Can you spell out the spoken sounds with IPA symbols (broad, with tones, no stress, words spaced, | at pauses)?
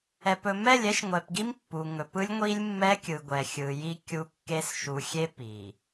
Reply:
ɛ˨pɵ˨ mɛ˦˨lʲɛ˦ʃŋʷɛ˨pɡi˦m pːu˨ ŋɵ˨p ɯ˦lʲŋʷi˦lʲmːɛ˦kʲɯ˨ ɡʷɛ˨xʲɯ˨ji˦ kʲu˦kːe˦s ʃu˨xʲe˦ pi˨